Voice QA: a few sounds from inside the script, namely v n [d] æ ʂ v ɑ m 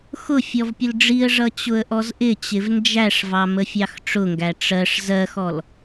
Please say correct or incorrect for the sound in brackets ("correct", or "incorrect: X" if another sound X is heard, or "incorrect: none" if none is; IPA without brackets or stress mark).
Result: incorrect: d͡ʒ